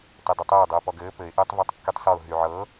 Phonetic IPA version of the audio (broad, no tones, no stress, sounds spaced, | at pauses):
t ɘ dˤ i tˤ ɘː dˤ ɤ ʊ̯ p ɔ ɡ ɘː p ɘ ɪ̯ ʔ ɘː tˤ v ɛ tˤ kː y tˤ s ɔ ʊ̯ ɦ y ʕ ɤ